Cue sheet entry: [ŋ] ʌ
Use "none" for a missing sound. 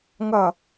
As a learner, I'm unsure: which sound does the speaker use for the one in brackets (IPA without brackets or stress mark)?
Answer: ŋ